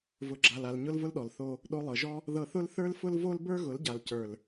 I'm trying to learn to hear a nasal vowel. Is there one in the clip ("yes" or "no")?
no